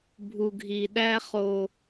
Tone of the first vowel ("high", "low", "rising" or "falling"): low